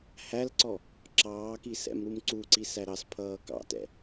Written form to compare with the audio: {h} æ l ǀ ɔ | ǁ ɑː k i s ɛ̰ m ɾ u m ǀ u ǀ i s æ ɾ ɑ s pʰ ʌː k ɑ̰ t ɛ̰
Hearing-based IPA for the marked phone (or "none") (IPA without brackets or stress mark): h